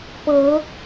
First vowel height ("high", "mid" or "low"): mid